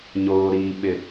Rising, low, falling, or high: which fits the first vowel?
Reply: low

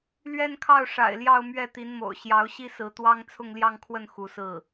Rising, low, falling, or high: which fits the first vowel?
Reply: falling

